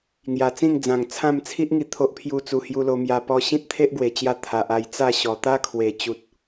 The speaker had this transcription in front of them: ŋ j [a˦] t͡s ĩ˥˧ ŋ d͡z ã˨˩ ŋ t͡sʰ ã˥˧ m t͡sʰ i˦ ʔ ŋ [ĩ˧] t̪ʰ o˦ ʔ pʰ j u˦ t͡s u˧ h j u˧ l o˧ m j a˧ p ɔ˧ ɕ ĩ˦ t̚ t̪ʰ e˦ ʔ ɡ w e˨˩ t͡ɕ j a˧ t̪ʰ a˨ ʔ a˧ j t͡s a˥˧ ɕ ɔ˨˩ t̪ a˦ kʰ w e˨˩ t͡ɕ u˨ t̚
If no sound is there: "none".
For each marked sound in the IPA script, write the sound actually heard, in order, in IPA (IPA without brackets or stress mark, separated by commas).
a˨˩, i˧